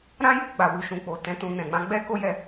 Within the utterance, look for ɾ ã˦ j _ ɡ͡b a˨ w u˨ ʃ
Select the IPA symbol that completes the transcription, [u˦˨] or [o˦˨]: u˦˨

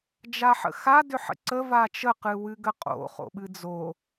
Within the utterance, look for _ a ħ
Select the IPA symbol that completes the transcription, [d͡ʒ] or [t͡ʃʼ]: d͡ʒ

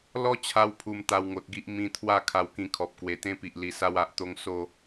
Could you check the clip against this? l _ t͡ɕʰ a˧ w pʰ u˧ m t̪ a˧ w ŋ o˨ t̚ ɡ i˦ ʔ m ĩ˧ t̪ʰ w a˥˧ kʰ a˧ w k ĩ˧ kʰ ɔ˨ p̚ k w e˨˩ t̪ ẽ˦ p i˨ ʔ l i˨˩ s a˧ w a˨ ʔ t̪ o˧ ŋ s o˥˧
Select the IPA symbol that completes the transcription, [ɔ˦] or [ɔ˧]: ɔ˦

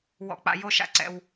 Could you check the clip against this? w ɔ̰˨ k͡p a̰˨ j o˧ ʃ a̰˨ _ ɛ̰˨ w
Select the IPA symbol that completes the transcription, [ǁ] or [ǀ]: ǀ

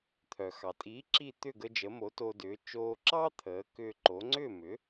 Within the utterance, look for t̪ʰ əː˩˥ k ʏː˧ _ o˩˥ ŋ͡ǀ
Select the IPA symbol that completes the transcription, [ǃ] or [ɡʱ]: ǃ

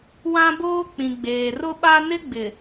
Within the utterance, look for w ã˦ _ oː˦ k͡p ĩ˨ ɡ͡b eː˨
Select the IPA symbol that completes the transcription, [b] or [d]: b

